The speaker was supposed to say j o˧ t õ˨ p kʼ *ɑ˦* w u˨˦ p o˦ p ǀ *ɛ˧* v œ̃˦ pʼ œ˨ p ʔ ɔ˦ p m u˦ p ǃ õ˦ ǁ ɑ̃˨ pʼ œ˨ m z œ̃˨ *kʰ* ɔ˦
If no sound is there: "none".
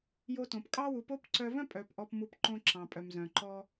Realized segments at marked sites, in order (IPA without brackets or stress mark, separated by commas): ɑ˦, œ˧, ǃ